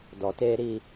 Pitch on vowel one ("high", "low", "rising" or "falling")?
low